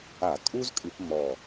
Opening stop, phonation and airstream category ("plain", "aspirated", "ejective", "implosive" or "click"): ejective